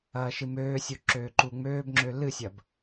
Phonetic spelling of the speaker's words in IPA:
ɐː ʃ ɨ m øː sʲ u ǁ øː ǃ u ŋ͡m øː b ŋ͡ǁ ø l ɨ sʲ ɐ b

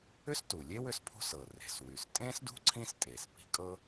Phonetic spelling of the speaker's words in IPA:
ʏ˥ s t u˩ lʲ e˥ w ʏ˥ s pʰ ṳ˥ s ɤ˩ r e̤˩ s w y˩ s tʼ ẽ˥ s d ṳ˥ ǀʰ ĩ˥ s tʼ e˩ s p i̤˥ kʼ ɤ˥

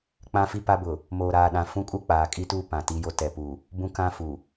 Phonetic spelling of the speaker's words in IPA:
k͡p ã˦ f i˦ p a˦ b ʊ˨ | m oː˨ ɾ aː˨ ɗ ã˨ f ũ˦ kʼ u˦ k͡p aː˨ kʼ i˦ t uː˦ p ã˨ t i˦ j o˦ t ɛ˨ p u˨ | b ũ˦ k ã˦ f u˨

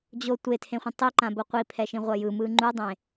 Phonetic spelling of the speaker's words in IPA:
d͡ʑ o tʷ e tʰ ẽ χʷ ɛ̃ tˤ i ǃ ã b o qʷ i pʰ ɛ ʃ ĩ ʁʷ ʌ j ɯ m ɯ ŋ͡ǃ u dˤ ẽ

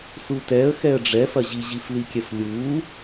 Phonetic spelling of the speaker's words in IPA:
s u t ɛ ə̯ x ɛ ə̯ ɖ͡ʐ ɛ f ɐ ʑ i ʑ i f l i kʲ ɛ f lʲ u

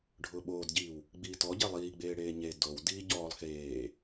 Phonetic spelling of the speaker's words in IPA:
ɖʱ ʊː ɓ oː d ɟ iː w | ɡ͡b iː t ɔ ɟ e lˠ iː ɡ͡b eː ɽ eː ɲ e d o w d iː ɟ ɔː lˠ x eː

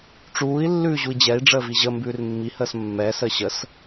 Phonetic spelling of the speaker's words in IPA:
ʈ͡ʂ uː i̯ lː ʉː ʑ u i̯ d͡ʑ ɛ i̯ ɖ͡ʐ əː v i ʑ ə m b ʉː r mː i h əː s mː ɛː s əː ɕ ə s

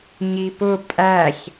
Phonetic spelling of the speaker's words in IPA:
ɲ i p ʊ pʼ æ ç

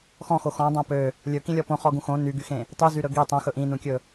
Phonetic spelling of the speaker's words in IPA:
x ɔ̃ x o x ɔ̃ dˤ õ p ø | lʲ ɵ k ĩ lʲ ɔ p õ χ ɔ ɡ ũ x õ n y ɡ y x ẽ | tˤ y z y ɾ ɵ ɡ i tˤ õ x ɵ ʔ ĩ n ũ kʲ ɵ

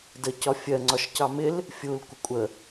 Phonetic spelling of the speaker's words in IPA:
d ə c ɒ fʲ ɜ ŋ͡ǀ ɒ ʃ c ɑ m ɪ l | fʲ u l kʷ ɪ kʷʼ ə

